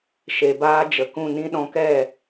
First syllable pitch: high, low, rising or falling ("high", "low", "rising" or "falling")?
low